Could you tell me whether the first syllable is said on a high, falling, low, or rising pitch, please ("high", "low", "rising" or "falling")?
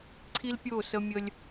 high